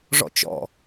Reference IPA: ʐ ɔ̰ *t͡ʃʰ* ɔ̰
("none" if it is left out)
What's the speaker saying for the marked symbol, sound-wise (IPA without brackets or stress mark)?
t͡ʃ